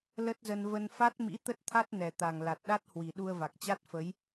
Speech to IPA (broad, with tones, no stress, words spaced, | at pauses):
lə˦˥t̚zə˧n və˧n fa˦˥t̚mḭ˧˥ t̪ə˦˥t̚t̪ʰa˦˥t̚nɛ˨˩t̪a˨˩ŋ la˨˩t̚ɗa˦˥t̚hwi˨˩ ɗu˧ə̯va˨˩k̚t͡ɕa˦˥t̚fə˨˦j